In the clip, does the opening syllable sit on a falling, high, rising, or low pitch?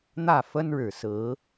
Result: falling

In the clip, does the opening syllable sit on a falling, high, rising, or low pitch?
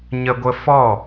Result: high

